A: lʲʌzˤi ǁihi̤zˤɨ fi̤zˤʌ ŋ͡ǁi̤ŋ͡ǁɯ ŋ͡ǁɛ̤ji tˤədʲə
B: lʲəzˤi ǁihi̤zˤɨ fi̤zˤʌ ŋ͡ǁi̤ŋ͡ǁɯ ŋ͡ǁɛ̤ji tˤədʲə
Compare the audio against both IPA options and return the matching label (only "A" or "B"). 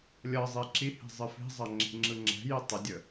A